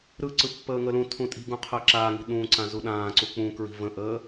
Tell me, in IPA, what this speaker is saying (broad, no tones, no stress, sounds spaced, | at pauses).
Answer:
ɾ ɯ ǀ ɯ pː əː ŋ ə l ũ tʰ ũ tʼ i̤ ɡ ũ qʰ əː ǁ aː ŋ i̤ ɗ ũː ǀ ã z u ɗ ãː ǀ u k͡p ũ k ɹ i̤ v ə̃ ʔ əː